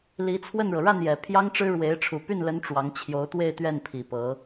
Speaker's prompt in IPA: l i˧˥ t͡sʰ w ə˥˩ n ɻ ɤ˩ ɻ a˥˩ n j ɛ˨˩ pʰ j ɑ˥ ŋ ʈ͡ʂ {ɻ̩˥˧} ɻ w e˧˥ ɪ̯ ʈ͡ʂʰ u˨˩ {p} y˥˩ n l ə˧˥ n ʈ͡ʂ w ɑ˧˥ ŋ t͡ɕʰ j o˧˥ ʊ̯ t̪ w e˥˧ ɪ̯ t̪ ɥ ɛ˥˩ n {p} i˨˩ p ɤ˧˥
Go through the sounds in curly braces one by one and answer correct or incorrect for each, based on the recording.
incorrect: ɻ̩˥, correct, incorrect: pʰ

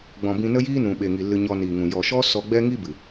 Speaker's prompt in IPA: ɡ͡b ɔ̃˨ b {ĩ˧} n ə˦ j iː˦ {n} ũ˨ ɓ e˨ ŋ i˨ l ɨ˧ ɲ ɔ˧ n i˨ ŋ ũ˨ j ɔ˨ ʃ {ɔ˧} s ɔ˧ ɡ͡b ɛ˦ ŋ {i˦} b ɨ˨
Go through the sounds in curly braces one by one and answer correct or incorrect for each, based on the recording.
correct, correct, incorrect: ɔ˦, correct

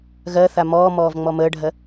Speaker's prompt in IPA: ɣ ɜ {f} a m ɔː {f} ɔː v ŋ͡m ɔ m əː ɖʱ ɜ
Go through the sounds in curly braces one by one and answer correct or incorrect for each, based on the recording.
incorrect: θ, incorrect: m

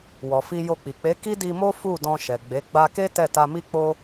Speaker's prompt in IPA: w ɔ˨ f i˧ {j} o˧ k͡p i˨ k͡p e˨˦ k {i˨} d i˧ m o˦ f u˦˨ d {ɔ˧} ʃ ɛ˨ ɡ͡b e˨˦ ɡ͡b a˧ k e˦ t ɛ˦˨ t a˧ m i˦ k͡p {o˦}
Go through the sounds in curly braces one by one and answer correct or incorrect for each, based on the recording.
correct, incorrect: i˦, incorrect: ɔ̃˧, correct

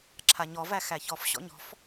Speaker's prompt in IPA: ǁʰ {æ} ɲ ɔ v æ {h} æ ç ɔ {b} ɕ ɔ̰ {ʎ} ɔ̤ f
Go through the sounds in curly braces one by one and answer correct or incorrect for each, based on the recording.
incorrect: a, incorrect: x, incorrect: f, incorrect: ɲ

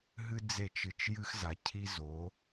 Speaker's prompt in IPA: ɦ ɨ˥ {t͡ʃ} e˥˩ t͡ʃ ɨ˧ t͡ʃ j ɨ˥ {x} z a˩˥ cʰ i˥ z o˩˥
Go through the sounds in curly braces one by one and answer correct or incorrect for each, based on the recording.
incorrect: d͡z, correct

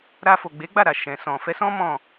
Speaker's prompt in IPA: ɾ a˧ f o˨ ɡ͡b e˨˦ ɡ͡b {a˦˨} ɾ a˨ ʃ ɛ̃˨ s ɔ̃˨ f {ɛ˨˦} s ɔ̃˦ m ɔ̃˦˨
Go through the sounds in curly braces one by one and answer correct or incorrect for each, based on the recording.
correct, correct

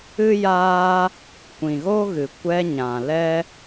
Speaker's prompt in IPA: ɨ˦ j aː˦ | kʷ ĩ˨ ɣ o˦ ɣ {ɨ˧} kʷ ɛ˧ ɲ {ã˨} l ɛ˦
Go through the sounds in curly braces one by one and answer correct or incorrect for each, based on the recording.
incorrect: ɨ˨, correct

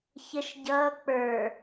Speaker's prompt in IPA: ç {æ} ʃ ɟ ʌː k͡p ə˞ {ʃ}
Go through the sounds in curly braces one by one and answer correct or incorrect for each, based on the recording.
incorrect: ə, incorrect: none

